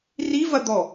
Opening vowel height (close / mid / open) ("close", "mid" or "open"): close